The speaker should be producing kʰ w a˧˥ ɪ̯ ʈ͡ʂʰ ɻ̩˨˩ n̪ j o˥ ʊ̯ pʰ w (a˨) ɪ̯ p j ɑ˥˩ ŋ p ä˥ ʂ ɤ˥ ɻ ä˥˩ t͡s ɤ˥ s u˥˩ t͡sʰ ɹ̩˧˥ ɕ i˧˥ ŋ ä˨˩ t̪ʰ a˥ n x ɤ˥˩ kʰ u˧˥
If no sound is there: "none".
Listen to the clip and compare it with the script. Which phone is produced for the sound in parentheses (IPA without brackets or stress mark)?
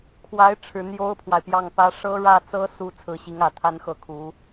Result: a˨